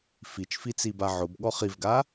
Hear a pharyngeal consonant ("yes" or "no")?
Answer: yes